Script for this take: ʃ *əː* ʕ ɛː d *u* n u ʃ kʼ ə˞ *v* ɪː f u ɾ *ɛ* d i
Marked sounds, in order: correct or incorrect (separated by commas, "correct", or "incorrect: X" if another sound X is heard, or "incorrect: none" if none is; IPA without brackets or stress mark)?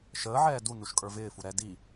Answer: correct, correct, correct, correct